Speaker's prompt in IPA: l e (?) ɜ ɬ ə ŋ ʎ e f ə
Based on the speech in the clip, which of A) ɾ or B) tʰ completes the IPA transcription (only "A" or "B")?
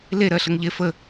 A